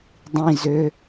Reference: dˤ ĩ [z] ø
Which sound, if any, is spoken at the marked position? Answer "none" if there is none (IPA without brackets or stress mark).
z